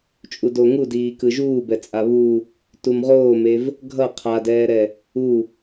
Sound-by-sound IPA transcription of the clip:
t͡ʃʼ u d o ŋ u d iː k ɯ ʒ uː b ɛ t͡sʼ a β u | t u m ʁ oː m e v | ɡʱ ʌ qʰ a d ɛː ɾ ɛ | u

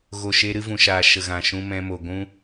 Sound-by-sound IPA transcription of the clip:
ɣ o˨ ʃ e˧ ɾ ɨ˧ v ũ˨ ʃ aː˨ ʃ ə˨ ɣ ã˨ ʃ ũ˧ m ɛ̃˧ m o˨ ɡʷ ũ˦

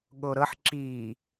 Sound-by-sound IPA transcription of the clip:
ɠ o ɾ ɤ ħ ǁ i

